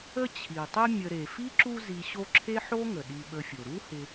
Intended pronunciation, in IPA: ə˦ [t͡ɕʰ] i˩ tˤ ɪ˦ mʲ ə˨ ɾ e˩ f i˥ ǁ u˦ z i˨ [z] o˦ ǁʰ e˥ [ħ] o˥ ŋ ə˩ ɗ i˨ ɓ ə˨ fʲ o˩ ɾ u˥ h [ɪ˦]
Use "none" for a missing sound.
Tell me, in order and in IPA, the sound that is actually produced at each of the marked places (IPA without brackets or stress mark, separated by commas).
t͡ɕʰ, ɕ, ħ, ɪ˨